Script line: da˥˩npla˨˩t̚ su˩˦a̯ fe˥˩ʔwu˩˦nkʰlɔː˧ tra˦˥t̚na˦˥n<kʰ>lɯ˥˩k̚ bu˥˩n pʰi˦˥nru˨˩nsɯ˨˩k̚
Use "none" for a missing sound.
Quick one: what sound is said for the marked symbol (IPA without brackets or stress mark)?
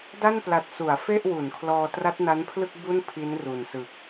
pʰ